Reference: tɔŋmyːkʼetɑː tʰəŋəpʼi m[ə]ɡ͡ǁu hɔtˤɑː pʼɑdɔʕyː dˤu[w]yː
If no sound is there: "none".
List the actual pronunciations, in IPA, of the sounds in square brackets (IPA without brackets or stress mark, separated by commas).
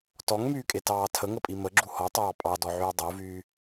ə, v